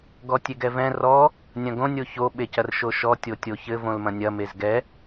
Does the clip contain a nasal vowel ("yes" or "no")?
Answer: yes